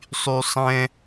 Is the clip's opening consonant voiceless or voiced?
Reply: voiceless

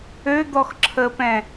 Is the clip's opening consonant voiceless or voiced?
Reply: voiced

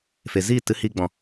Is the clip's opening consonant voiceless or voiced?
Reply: voiceless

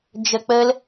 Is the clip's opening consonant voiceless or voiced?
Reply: voiced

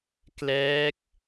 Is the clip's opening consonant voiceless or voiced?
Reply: voiceless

